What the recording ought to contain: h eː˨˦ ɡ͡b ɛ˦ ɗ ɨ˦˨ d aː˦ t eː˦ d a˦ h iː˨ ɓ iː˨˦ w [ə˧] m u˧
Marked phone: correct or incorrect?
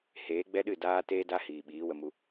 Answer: correct